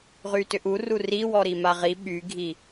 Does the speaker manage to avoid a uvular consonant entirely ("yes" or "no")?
no